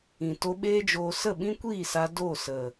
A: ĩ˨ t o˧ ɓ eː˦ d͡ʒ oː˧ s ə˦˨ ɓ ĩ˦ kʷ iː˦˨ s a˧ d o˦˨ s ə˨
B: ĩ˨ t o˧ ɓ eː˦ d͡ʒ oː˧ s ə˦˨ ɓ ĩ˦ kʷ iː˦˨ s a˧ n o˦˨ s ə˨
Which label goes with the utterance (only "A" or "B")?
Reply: A